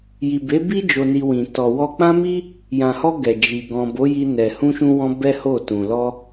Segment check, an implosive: absent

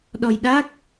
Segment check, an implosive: present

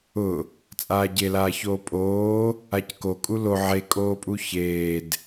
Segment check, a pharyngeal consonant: present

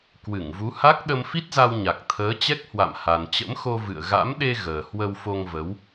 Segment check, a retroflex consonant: absent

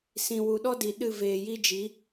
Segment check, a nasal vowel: present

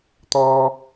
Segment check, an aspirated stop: absent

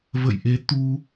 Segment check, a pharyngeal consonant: absent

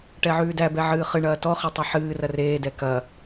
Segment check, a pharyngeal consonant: present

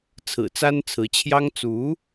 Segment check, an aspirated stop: present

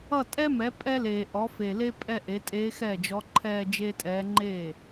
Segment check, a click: present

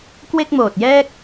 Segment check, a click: absent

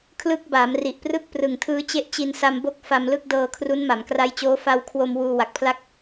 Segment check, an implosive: absent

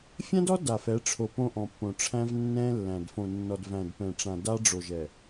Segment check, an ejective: absent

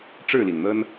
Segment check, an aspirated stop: absent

